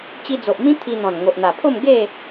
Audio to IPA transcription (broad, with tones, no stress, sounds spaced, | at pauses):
t͡ɕ i˧ d͡z o˨ ʔ m ĩ˦ t̪ʰ i˧ n̪ ɔ̃˨˩ n ŋ o˨ ʔ n̪ a˨˩ pʰ o˥˧ m ɡ e˥˧